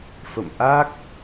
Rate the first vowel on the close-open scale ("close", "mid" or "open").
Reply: mid